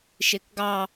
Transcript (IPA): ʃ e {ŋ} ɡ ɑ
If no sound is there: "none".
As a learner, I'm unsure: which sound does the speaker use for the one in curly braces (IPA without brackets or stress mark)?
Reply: k